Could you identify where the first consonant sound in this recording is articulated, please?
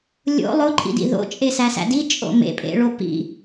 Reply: alveolar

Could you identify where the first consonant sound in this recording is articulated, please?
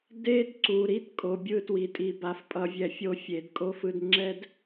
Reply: alveolar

